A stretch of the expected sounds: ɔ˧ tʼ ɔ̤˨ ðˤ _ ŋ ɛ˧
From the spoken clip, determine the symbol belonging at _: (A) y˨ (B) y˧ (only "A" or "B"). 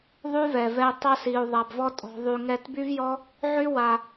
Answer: A